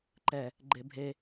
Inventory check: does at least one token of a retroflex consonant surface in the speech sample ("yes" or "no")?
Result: no